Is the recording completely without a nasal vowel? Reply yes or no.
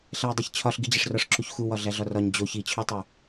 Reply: yes